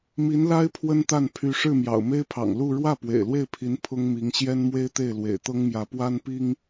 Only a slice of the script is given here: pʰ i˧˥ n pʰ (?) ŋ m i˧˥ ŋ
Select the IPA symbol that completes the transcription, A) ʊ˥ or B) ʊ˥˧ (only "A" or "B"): A